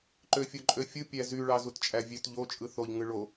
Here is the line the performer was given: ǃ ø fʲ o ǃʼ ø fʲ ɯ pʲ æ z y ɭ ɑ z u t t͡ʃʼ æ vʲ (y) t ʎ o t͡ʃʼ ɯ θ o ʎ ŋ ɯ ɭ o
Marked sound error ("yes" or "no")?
yes